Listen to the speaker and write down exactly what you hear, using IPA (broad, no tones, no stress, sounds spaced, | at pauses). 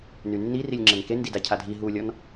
n y nː i r i lʲ ŋ͡ǁ ɘ n k e n d i d a cʰ a dʱ i ɦ u lʲ ɔ n